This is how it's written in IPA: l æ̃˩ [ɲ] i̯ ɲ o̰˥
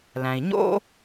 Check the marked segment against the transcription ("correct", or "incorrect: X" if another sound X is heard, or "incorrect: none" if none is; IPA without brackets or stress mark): incorrect: none